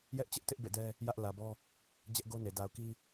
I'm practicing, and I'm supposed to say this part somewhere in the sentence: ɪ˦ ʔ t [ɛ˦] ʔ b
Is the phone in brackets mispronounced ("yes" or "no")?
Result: yes